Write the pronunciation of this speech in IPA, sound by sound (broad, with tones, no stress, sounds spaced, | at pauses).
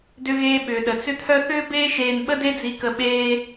d ʏ˧ ɣ eː˧ ɓ ʏː˩ ɗ ə˩ t͡s ʏ˥ t̪ʰ œ˥ θ ʏː˥ b eː˥ ʃ eː˧ n ɓ ə˥ d e˥ d͡z i˧ k ə˧ ɓ eː˥